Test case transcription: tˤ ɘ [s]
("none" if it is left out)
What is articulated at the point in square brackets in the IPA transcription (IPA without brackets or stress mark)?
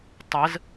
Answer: z